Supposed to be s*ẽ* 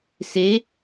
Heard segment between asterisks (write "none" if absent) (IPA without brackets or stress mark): e